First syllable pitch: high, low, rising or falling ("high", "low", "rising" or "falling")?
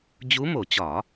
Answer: rising